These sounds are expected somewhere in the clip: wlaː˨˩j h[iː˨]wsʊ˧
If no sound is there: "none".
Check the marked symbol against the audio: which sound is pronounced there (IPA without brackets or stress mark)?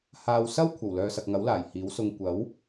iː˨˥